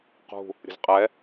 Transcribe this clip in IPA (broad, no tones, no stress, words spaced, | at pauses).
qṳ | ɾʲə̤zqʼɛ